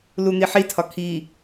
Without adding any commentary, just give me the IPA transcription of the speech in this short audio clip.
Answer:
lun̪iħitʰɒ kʰi

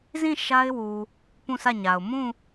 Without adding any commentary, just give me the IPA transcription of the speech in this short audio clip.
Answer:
zĩ˦˨ ʃa˦ɪ̯wu˨ | pũ˦˨sʰä˦˨ɲa˨ʊ̯ mũ˦˨

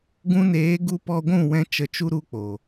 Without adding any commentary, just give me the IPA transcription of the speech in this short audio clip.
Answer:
ɡũ˧neː˨˦ɡu˧ pɔ˧ɡʷũ˦˨wɛ̃˧ t͡ʃə˧t͡ʃu˦ɾu˧k͡po˨

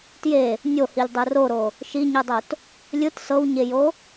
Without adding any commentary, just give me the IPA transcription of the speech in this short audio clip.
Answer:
tje | nʲohilʲdˤɯ roɾo | ʃiɲɯdˤot | lʲɯt sɤwɲejo

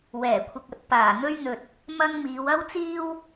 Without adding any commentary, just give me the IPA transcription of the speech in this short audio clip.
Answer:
wɛː˨˩ kʷʰɪ˨k̚ɐ˨t̚ paː˨˩n̪ɵ˥ɥn̪ɵ˨t̚ | mɐ˥ŋmiː˨˧w ɐ˥wt͡siː˥w

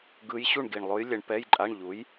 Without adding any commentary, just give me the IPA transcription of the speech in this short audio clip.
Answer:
ɡɯ˧˥j ɕu˥˨ɳɡi˨˩ɳlˠo˧˥j lʲɛ˧ɳpɛ˧˥˧jǃʼa˧˥˧ɳ ʎu˩˥j

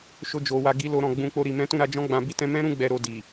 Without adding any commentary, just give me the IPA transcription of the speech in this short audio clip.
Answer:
ʃo˧d͡ʒo˨wa˧ɡi˧ lo˧ɾɔ̃˨ ɡ͡bũ˧k͡po˧ ɾi˨mɛ̃˨˦tũ˦˨ɾa˧ d͡ʒɔ̃˦ɡ͡bã˧bi˦ tɛ̃˧mɛ̃˦ɾũ˧ ɡ͡bɛ˧ɾo˧ di˨

